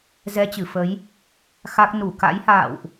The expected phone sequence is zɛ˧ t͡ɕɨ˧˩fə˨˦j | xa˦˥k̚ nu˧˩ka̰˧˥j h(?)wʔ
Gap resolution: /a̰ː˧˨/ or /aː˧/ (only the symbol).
a̰ː˧˨